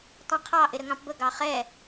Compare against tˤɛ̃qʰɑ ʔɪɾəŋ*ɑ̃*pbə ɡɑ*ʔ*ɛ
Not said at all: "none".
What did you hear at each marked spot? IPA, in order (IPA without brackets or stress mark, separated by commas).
ɑ̃, χ